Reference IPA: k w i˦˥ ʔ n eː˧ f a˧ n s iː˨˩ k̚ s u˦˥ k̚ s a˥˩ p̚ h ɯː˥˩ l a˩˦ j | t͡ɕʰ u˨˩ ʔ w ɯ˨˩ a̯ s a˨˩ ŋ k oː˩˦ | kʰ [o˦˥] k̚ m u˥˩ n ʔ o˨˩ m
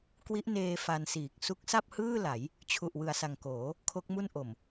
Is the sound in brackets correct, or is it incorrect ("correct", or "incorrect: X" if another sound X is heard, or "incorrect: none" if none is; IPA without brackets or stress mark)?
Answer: correct